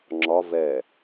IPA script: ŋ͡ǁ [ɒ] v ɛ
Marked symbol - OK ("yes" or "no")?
yes